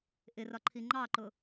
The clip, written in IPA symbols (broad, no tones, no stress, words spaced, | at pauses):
ʔɪrɒǃʰi ŋ͡ǃɑǃʊ